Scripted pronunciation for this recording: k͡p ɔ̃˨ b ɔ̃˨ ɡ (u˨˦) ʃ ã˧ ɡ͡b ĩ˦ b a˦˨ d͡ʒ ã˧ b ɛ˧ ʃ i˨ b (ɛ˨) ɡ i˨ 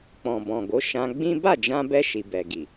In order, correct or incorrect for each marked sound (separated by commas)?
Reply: incorrect, correct